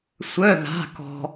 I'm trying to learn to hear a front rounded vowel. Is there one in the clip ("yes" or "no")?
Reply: yes